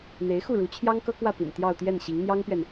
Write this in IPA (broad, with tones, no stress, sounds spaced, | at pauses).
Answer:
n̪ e˧˥ ɪ̯ x u˥˩ ɻ u˧˥ t͡ɕʰ j ɑ˥ ŋ k ɤ˥ k w ä˥˩ p ḭ˨˩ n t̪ j ɑ˥˧ ʊ̯ t̪ j ɛ˥˩ n ɕ i˧˥ ŋ n̪ j ɑ˥ ŋ p ɥ ɛ˨ n